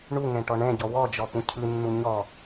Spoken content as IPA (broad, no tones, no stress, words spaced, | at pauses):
ɳuŋɛ̃ ʈɔɳɛ̃ɟɔ wɔd͡ʒɔ pũcʰɯnːu ɲɔ